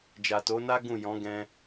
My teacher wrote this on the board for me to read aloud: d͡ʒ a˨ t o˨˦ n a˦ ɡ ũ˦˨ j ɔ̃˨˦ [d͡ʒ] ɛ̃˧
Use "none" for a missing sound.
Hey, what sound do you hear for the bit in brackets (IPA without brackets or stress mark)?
ɡ